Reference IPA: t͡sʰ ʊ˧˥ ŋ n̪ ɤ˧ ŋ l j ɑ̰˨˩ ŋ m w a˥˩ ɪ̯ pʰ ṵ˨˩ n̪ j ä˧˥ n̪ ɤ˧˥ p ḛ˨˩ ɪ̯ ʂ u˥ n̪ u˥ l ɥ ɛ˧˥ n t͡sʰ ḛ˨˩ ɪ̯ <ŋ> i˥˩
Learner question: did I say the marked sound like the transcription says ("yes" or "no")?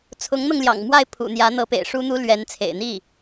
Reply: no